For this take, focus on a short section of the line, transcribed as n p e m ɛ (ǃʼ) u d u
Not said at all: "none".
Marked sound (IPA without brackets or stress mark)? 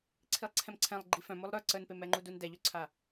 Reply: ŋ͡ǃ